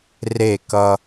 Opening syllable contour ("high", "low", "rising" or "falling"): falling